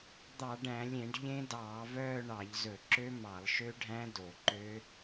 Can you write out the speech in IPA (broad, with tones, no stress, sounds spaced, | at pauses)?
d̪ ɑ˧˩˧ ɖ æ̃˧˩˧ lʲ ẽ˧˩˧ ɖ ʎ ẽ˦˥ d ɑː˧˩˧ v œː˥˧ ɳ ɑ˧˩˧ ʎ z ɵ˧˩˧ ǁ ø˦˥ m ɑ˧˩˧ lˠ ʃ ø˦˥ ɖʱ æ̃˦˥ d o˧˩˧ ǃ ø˦˥